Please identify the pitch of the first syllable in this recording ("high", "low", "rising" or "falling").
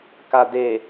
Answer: low